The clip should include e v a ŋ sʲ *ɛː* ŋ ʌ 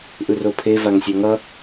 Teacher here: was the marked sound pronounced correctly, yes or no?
no